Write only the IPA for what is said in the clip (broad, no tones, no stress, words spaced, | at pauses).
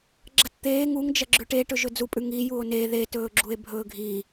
ɡ͡ǁɐtt̪eː ŋuŋd͡ʒɐɡ͡ǁʉ ʈe ʈɵʒɵd͡zupʼʉ ŋi juo̯ne ðetɵːɡ͡ǁue̯ bʱɵːɡʱi